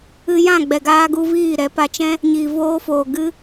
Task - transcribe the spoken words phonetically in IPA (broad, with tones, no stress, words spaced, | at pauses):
ɨ˧jã˦˨ ɡ͡bɛ˨ɡaː˧ɡu˧ viː˦˨ ɾɛ˨˦pa˧t͡ʃɛ̃˦ | ɲiː˨voː˧foː˨ ɡɨ˦